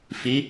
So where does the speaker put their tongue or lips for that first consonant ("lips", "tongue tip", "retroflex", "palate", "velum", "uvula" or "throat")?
lips